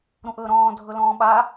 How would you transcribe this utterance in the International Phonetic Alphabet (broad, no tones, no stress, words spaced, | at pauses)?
ɾũʔɵːɾɔ̃ː dʱɵlɔ̃ːɓa